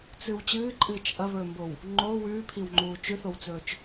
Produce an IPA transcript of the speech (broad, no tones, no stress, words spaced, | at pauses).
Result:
t͡sɨw t͡ɕɨːǃʼɨːt͡ʃ ʔɐβɵːmbow | ŋ͡ǃoː wʉːpʰiwŋ͡ǃuː t͡ʃʉθowt͡sɵːt͡ʃ